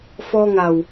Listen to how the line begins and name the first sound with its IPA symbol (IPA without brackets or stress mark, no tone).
f